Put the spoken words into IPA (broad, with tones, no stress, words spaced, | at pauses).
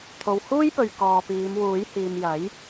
t̪ʰo˨whuː˥jpɵ˨ɥ kɔː˨piː˨˧mwuː˨˥j hiː˨mjɐ˨˥j